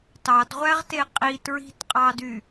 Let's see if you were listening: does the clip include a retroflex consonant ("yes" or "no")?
no